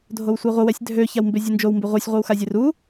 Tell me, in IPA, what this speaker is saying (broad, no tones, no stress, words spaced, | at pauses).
dʱowsʷeʁʷə wɛsʲdʱø çawmbezʲɨnd͡ʒow mbeʁʷesʲ ʁʷɨwxazʲeru